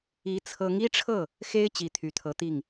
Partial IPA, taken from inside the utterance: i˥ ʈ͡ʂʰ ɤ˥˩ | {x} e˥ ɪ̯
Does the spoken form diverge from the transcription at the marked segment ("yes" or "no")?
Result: no